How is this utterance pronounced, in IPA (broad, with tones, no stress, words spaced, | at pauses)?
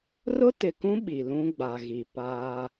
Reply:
rʊ˦tɪ˨kũ˦ ɓi˨lũ˦ɡ͡ba˨ɣi˨ paː˦